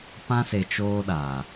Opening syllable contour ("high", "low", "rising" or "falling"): high